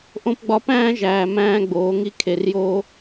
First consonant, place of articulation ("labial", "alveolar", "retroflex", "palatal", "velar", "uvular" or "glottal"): glottal